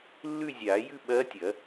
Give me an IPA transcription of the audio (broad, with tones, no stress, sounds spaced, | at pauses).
lː ʉ˥˧ zʲ aː˨˩˦ j ʉ˥˧ ɓ ɐː˧˥ tʲ ɐ˨˩˦